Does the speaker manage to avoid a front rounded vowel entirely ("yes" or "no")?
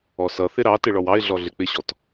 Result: yes